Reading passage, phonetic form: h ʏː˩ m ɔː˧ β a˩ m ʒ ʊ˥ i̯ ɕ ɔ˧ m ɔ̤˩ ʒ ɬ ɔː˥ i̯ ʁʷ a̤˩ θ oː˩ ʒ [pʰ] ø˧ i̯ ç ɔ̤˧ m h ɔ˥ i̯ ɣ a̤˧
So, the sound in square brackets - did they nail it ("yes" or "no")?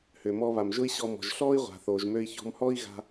no